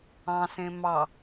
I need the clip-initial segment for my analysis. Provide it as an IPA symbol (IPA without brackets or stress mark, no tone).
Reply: ɑ̃